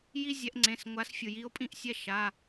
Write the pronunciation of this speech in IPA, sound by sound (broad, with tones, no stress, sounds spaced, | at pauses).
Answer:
j i˦ zʲ ɛ˨˦ ʔ ŋ͡ǀ ẽ˩˧˩ s ŋʷ a˨˦ s fʲ ɯ˩ j i˨˦ o̯ pʼ ĩ˦˨ ʔ sʲ ɛ˦˨ ʃ a˩˧˩